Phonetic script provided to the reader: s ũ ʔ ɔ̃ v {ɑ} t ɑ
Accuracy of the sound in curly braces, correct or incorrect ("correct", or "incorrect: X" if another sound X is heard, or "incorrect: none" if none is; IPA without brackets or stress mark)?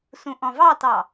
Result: correct